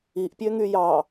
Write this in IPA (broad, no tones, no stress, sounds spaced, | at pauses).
i ʔ pʲ ø ŋ y j ɑ